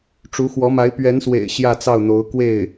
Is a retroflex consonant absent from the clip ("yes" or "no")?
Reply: no